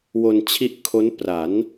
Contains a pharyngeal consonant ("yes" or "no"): no